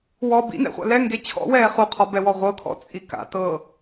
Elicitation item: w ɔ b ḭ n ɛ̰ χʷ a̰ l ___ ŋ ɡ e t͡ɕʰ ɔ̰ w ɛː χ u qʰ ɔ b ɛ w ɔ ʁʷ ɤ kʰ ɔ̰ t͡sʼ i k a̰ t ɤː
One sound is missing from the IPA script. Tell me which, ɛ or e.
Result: ɛ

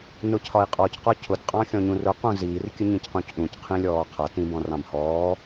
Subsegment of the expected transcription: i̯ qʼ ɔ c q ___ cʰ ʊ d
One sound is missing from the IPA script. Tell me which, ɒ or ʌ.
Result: ɒ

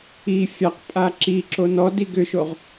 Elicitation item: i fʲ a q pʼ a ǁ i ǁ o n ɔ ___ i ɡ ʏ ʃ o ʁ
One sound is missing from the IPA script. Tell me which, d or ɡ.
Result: d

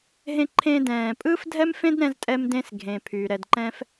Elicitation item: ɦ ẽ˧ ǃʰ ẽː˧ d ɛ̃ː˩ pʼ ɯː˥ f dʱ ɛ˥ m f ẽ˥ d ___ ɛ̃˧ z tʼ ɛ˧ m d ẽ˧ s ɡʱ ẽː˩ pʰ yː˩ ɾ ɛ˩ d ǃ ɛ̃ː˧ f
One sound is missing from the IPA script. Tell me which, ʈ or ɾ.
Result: ɾ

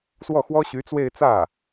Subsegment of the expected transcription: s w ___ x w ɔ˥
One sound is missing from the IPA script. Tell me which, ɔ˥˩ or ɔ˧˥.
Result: ɔ˥˩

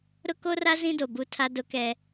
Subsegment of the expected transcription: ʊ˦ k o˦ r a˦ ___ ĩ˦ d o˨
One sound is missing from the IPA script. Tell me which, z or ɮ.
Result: z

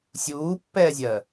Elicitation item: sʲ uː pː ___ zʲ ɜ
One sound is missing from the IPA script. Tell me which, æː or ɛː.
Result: ɛː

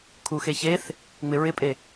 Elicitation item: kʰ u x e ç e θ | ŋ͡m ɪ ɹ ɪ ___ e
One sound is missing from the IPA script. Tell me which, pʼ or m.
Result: pʼ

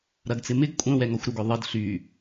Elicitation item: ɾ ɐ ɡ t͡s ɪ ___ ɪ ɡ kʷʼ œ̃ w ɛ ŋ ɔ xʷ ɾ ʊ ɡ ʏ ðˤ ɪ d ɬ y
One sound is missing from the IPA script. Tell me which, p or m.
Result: m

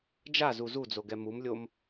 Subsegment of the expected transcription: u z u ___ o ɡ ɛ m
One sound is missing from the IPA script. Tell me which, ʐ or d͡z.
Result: d͡z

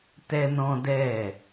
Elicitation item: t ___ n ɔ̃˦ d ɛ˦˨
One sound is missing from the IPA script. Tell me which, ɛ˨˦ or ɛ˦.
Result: ɛ˦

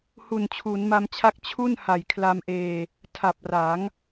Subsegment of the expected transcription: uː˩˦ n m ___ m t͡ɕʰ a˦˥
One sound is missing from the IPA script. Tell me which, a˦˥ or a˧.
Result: a˧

